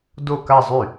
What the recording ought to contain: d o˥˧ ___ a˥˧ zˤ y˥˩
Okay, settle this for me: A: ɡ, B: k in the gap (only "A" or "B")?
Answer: B